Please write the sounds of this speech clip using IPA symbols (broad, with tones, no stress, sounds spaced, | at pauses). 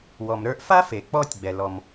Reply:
w ɔ˩ m ɾ ə˞˧ ʔ f a˥ f e˩ k͡p ɔ˧ tʲ ɡ͡b ɛ˩ l ɔ˩ m